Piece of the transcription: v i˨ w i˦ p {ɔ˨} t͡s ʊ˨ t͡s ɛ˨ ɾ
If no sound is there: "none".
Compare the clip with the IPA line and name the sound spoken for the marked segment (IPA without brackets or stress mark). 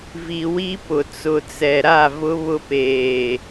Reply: ʊ˨